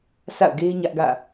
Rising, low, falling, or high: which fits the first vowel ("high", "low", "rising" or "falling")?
falling